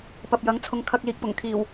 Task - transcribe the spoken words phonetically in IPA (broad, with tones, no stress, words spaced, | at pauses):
pɐ˨p̚jɐ˨˥ŋt͡sʰʊ˨˧ŋ kʰɐ˧k̚ liː˨k̚pʊ˨˩ŋkʰiː˨˩w